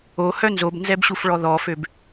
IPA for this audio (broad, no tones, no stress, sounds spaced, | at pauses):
o h œ n z o b n z ɛ b ɕ u f ɭ ɔ ð ɔ f ø b